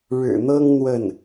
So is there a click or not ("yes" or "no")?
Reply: no